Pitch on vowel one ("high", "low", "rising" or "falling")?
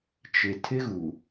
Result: low